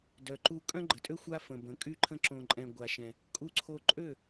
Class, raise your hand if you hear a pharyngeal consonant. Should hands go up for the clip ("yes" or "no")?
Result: no